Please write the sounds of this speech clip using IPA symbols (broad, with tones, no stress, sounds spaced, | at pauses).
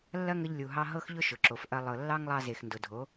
lː ɐ˦ ŋ ə˧ ʎ lʲ u˨ ɦ ɑ˧ ɦ ɤ˦ x ʎ ʊ˦ ʃ ʊ˨ ǁ o˨ f ʔ ɐ˧ lˠ ɤ˨ lː ɑ˦ ŋ lˠ ɑ˧ z e˨ x n d ʊ˨ dʱ o˨˦